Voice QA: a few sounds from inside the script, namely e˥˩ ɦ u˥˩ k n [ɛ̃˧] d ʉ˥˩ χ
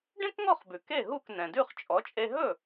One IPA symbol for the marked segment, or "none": ɛ̃˩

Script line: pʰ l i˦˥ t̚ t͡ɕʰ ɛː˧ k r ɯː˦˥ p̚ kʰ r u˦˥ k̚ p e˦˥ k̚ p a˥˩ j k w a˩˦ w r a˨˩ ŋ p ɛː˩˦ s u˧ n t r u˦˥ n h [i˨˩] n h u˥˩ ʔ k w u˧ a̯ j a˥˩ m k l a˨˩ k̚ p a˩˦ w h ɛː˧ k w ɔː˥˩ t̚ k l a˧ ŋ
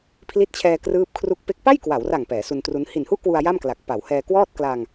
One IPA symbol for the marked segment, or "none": i˨˩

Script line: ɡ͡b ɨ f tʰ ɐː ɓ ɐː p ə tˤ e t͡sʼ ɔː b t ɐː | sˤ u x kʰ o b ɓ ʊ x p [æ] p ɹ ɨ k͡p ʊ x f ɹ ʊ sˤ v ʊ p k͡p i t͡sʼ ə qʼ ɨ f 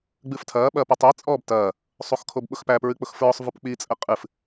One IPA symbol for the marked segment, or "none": æ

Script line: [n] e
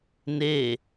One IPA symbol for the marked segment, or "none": n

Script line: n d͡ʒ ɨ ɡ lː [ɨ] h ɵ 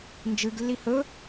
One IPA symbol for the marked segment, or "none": i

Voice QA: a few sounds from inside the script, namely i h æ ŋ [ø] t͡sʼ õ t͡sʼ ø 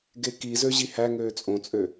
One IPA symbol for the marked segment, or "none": øː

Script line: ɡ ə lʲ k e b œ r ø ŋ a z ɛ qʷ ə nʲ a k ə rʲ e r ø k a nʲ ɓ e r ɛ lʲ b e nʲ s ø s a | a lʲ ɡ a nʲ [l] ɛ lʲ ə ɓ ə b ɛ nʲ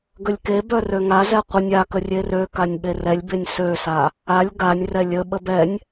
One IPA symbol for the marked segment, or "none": r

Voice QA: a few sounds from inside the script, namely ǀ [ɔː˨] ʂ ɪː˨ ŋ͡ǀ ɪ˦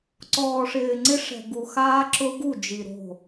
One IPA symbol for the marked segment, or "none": ɔː˨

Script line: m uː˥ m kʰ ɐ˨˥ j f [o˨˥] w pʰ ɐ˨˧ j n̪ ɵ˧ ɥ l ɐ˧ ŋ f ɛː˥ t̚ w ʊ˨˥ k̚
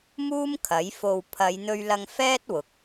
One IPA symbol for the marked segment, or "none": o˧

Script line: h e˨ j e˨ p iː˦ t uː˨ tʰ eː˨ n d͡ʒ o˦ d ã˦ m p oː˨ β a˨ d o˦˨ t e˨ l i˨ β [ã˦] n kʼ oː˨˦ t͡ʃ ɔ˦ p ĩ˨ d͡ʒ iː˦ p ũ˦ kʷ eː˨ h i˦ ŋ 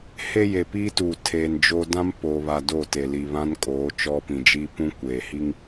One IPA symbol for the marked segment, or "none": ã˦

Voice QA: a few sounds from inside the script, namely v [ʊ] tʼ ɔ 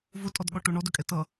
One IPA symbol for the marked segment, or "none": ʊ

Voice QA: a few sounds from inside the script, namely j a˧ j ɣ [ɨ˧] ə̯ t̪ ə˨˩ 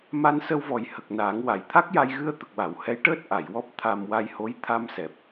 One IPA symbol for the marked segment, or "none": ɨ˧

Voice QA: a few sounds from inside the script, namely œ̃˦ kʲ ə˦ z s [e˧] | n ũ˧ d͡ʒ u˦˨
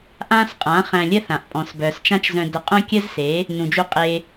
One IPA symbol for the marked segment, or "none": e˨˦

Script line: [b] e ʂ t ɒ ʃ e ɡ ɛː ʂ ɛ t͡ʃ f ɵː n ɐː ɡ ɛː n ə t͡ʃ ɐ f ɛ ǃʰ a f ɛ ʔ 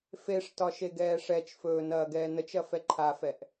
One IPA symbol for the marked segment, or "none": f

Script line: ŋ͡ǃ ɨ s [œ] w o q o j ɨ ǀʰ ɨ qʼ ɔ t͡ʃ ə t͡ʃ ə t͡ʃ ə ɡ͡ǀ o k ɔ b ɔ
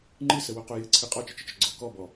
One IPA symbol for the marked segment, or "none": ə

